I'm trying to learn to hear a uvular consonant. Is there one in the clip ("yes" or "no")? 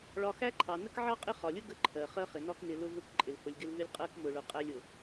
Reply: yes